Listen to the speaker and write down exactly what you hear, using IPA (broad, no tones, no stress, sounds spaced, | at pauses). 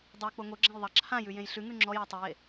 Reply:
dˤ o k͡p o ŋ o ɡ͡ǁ ã j ðˤ ɑ ǁʰ ã j ʉ j ẽ j ɬ ʉ ŋ ʉ ŋ͡ǁ ɔ j ɑ tˤ ʊ j e